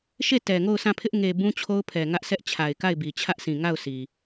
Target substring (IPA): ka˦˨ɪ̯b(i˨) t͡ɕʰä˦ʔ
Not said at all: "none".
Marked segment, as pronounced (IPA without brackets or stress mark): i˨